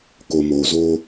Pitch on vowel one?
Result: low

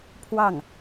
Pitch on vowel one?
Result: falling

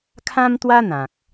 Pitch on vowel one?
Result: high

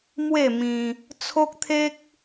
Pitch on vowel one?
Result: falling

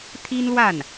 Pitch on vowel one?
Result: high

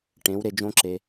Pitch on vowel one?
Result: rising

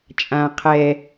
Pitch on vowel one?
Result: high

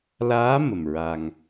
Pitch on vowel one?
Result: rising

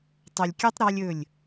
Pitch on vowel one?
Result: low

